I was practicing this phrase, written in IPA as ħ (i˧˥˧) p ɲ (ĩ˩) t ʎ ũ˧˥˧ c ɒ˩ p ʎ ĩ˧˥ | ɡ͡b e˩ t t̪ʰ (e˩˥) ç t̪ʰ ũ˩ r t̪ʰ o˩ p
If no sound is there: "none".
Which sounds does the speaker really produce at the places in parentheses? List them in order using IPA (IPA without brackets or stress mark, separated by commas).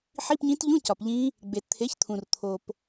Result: i˧˥˧, ĩ˧˥, e˩˥